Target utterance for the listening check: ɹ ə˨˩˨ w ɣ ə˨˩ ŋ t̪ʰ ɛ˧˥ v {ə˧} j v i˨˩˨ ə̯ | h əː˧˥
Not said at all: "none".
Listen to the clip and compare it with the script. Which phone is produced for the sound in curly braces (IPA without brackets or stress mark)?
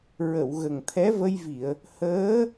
ə˧